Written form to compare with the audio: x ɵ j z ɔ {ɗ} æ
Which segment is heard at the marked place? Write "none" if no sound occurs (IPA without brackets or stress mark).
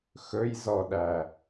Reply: ɗ